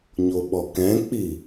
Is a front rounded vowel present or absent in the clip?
absent